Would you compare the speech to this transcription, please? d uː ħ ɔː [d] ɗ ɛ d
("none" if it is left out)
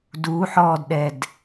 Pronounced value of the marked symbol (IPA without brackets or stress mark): d